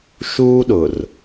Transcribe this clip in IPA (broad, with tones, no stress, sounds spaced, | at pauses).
ʃ uː˦ ɗ ʊ˨ r